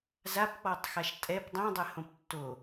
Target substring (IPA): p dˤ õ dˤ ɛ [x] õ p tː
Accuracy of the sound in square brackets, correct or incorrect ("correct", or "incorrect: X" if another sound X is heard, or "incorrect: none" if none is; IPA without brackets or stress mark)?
incorrect: h